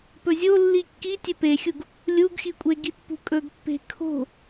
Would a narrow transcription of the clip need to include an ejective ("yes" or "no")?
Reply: yes